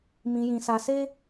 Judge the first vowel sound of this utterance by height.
high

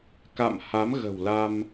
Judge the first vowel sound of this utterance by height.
low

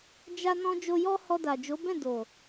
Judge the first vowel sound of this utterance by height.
low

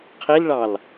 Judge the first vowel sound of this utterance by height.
high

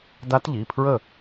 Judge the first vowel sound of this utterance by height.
low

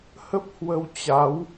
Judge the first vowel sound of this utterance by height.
mid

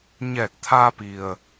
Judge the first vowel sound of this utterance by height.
mid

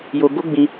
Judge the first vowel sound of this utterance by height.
mid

